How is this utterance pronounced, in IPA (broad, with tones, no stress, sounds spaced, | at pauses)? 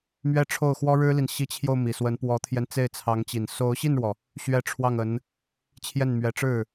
m ɥ ɛ˥˧ ʈ͡ʂʰ o˥˩ ʊ̯ x w ɔ˥ ɻ ɻ̩˥ l i˨ n ɕ i˧˥ t͡ɕʰ j o˧ ʊ̯ m i˨˩ s w ə˧˥ n p w ɔ˧˥ t̪ʰ j ɛ˧ n t͡s e˥˩ ɪ̯ t͡sʰ ɑ˧˥ ŋ t͡ɕ i˨˩ n s o˧˥ ʊ̯ ɕ i˥˩ n ɻ w ɔ˩ | ɕ ɥ ɛ˥˧ ʈ͡ʂʰ w ɑ˥˩ ŋ ə˧˥ n | t͡ɕʰ j ɛ˥˩ n m ɥ ɛ˧˥ ʈ͡ʂ ɻ̩˥˩